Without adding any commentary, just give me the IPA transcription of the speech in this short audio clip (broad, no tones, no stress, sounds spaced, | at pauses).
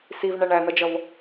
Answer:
s i v ɳ æ ɳ æ n̪ ʌ d͡ʒ ʌ v